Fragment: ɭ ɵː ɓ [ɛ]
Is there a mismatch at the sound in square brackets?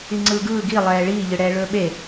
yes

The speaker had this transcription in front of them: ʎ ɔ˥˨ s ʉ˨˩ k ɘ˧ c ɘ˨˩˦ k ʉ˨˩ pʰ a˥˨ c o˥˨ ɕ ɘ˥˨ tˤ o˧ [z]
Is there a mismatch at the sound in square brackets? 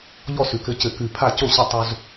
no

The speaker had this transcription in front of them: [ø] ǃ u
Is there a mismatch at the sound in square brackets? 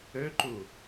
no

